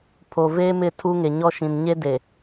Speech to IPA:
pʰ o˨ v eː˦ m ɪ˦˨ tʰ u˦ ŋ e˨ ɲ ɔ˦ ʃ ĩ˨ n ɲ e˦ d e˨

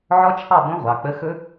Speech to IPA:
ʕ ɔ˦˥ t͡ʃʰ ɑ˥˨ b õ˦˥ ʁʷ ɑ˩˧˩ k͡p ə˧˥˧ x ɵ˦˥

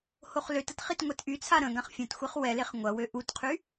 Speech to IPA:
h o χ l ø t ə t χ i t ŋʷ ɛ t ʔ y t͡sʰ a ɾ ə̃ ɡ ã χ fʲ ɐ̃ t xʷ e χ w ɛ l e χ ŋʷ ɐ w ø ʔ u t qʰ y

